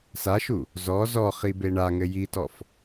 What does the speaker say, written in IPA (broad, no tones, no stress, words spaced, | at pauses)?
saʃu | zɔ zɔ χibeɳaŋɘ jitɔf